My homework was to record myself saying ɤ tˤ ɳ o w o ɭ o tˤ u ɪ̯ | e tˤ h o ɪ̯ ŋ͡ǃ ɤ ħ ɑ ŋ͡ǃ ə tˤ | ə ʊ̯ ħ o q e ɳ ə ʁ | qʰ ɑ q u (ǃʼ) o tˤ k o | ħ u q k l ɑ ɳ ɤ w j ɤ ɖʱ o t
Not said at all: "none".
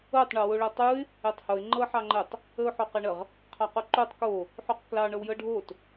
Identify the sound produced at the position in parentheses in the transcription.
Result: ǃ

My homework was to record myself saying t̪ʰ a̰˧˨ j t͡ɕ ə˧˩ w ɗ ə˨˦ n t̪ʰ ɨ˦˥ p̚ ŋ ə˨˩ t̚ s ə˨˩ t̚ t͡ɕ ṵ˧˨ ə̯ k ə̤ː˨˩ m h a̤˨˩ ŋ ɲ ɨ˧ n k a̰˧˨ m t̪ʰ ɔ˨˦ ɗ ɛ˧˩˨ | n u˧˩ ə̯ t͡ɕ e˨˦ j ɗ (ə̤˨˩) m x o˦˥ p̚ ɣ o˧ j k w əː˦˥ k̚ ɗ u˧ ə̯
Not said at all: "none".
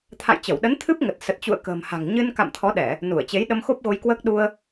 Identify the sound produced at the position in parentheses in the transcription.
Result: ə˧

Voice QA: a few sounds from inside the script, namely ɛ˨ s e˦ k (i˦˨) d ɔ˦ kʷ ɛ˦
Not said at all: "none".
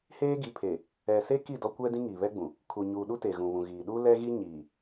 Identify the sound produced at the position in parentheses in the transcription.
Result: i˦˨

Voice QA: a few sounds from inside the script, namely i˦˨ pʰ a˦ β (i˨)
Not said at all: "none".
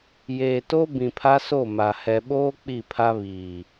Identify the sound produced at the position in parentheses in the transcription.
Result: iː˨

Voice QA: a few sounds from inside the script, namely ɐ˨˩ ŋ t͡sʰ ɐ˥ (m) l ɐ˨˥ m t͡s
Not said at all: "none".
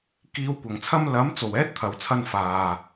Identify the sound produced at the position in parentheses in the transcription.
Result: m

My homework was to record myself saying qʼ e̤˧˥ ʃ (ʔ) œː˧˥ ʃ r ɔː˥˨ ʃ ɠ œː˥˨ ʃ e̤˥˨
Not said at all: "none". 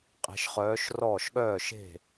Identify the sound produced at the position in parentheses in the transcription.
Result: χ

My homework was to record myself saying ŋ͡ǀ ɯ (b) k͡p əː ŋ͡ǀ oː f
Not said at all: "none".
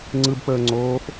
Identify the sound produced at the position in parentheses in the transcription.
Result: b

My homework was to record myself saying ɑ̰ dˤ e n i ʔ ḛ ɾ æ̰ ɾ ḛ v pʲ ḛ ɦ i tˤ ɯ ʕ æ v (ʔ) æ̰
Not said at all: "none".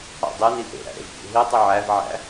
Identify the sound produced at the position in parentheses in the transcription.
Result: ʕ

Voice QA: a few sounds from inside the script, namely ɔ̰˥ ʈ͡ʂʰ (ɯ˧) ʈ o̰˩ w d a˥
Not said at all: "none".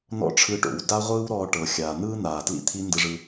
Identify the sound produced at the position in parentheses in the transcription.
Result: ɯ˧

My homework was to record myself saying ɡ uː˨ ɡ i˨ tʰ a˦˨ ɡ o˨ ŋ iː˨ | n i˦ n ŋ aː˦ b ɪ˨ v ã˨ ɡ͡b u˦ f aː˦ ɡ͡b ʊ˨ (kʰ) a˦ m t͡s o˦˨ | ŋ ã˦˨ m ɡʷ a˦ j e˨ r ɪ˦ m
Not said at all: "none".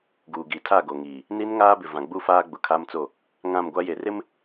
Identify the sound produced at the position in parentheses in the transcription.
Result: kʰ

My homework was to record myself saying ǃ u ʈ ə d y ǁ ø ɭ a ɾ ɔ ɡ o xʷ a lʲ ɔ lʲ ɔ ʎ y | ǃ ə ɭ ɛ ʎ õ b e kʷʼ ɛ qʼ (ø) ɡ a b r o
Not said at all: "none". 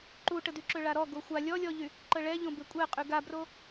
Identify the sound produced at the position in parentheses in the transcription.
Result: y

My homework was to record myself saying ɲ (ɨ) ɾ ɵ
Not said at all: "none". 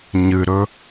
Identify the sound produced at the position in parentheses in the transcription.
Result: ɨ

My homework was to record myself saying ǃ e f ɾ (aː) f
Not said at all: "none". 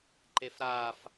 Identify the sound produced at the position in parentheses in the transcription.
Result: aː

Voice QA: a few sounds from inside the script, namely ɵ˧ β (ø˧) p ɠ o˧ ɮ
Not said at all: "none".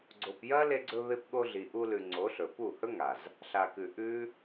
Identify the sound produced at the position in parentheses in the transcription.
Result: e˧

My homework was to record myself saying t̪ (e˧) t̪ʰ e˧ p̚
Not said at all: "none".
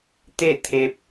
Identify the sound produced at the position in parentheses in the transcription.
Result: e˥˨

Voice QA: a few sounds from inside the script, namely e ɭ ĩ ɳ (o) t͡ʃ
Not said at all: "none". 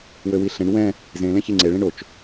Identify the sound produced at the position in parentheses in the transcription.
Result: o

